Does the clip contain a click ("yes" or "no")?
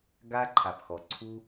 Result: yes